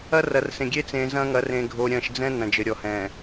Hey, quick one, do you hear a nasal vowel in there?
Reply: yes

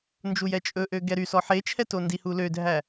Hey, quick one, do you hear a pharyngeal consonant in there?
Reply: yes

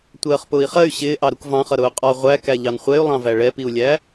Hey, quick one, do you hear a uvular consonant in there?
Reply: yes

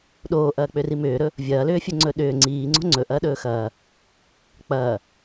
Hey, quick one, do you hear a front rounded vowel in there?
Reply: yes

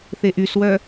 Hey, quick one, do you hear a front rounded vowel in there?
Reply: yes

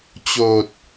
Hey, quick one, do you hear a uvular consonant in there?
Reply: no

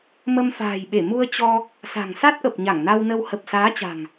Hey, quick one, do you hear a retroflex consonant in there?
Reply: no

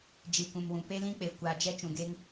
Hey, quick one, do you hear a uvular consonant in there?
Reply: no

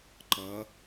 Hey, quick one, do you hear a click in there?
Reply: yes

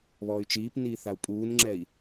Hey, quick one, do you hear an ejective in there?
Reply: yes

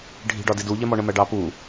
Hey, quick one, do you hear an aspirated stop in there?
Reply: no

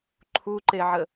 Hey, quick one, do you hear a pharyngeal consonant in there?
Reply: yes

